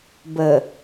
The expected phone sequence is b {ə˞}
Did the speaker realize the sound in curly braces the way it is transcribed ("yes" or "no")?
no